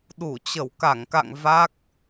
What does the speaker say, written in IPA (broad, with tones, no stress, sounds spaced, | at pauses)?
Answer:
ɗ u˧˩ t͡ɕ ə˧˩ w k a˧˩ ŋ k a̰˧˨ ŋ v a˦˥ k̚